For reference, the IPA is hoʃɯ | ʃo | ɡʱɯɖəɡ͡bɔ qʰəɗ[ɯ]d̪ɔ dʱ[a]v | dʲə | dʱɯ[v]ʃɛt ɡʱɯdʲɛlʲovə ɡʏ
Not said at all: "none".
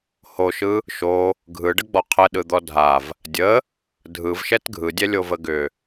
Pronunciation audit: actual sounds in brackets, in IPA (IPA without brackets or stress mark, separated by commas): ɯ, a, v